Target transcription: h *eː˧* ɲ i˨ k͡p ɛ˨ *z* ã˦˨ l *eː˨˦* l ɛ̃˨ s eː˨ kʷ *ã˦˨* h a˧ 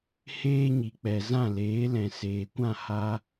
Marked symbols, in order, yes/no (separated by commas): yes, yes, yes, yes